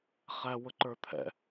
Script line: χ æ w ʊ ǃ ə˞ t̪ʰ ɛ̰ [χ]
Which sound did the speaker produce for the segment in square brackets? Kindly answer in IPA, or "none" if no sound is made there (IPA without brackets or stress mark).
none